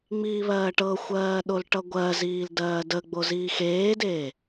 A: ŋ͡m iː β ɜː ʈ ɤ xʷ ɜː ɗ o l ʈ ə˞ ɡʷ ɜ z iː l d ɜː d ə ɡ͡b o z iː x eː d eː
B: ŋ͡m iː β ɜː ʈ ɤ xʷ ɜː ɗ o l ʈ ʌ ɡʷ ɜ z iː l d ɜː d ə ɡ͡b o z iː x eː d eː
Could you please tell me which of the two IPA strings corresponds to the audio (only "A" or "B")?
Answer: B